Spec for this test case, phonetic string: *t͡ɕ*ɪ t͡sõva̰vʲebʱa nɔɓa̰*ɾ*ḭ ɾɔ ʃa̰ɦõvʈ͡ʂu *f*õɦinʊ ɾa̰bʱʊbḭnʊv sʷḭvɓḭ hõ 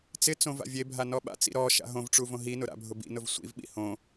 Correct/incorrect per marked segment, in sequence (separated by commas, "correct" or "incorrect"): incorrect, incorrect, incorrect